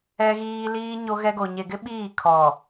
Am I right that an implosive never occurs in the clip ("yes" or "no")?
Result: no